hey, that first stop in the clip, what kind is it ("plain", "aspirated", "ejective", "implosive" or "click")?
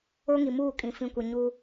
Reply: ejective